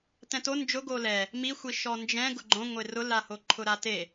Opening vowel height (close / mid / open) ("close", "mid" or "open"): mid